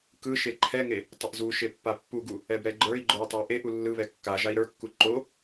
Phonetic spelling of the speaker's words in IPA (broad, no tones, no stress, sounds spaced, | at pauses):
k ɯ ʃ e ǃʰ ɛ ŋ e | tˤ ə ʔ z u ʃ e pː a pː u ɡ u | ɛ b ɾ ɛ ɡ͡ǃ ə˞ i̯ ɡ͡ǃ o u̯ tˤ a ʔ e ʔ u lː ɯ β ɛ kː a ʒ a i̯ ɾ ə˞ kː u ǃ o